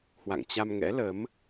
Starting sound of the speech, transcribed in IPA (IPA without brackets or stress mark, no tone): h